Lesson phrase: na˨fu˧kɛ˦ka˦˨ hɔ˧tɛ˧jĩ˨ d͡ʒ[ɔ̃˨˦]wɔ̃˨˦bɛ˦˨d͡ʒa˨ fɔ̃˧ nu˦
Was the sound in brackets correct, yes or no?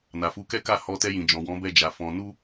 no